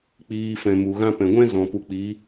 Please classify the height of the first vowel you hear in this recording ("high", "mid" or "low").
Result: high